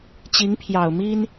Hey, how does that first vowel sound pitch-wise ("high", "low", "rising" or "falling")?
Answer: rising